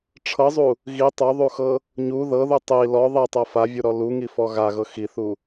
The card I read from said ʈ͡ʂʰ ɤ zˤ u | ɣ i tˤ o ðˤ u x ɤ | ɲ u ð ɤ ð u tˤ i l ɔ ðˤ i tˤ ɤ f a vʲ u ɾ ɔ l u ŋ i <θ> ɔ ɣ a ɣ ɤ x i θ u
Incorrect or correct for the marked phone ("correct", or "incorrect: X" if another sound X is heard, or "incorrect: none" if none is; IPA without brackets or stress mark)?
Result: incorrect: f